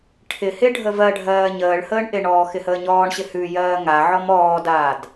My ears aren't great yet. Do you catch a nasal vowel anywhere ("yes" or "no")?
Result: no